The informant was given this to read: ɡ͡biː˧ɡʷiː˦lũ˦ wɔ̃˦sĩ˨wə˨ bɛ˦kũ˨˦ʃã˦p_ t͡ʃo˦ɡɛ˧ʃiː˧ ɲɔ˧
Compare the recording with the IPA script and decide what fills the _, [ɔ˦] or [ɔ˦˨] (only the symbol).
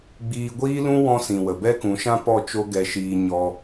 ɔ˦˨